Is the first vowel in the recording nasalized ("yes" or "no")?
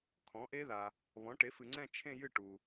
yes